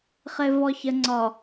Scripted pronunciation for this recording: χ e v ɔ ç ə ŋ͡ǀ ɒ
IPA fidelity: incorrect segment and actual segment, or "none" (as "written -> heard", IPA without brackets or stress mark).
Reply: none